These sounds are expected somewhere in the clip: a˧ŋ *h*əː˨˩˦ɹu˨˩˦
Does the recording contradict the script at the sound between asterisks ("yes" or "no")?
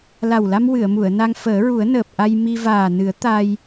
yes